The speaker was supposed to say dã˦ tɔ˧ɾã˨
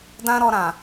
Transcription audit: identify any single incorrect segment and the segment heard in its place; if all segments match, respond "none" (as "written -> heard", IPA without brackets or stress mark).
t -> ɾ